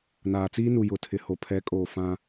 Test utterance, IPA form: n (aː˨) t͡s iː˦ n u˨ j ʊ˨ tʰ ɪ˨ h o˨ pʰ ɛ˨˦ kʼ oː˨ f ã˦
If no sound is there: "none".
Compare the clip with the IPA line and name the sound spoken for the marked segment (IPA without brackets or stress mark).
aː˨